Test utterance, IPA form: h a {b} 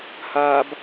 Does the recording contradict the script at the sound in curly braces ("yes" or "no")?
no